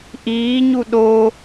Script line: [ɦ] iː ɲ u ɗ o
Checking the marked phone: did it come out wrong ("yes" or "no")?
yes